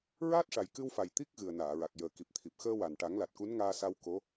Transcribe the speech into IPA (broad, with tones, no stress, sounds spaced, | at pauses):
ɹ aː˦˥ t̚ ʂ a˨˩ j k ɨ˧ w f a˨˩ j t̪ i˦˥ k̚ ɣ ɨ˨˩ ə̯ n aː˨˩˨ ɹ a˨˩ k̚ j əː˨˩ k i˨˩ p̚ t̪ʰ i˨˩ p̚ x əː˧ w a˨˩ n ʈ a˨˩˦ ŋ l a˨˩ t̚ k u˧˥ n ŋ aː˧ s a˧ w k o˧˥